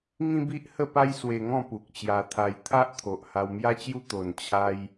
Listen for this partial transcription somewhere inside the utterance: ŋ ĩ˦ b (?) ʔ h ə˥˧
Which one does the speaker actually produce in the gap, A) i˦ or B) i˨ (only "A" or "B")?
A